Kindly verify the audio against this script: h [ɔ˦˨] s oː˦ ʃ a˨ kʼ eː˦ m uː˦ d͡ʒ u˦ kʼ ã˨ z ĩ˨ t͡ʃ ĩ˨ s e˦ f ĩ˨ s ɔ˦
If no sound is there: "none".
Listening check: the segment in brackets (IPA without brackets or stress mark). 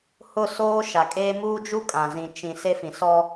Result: ʊ˦˨